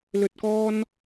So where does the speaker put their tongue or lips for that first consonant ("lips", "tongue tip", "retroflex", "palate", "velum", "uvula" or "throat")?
tongue tip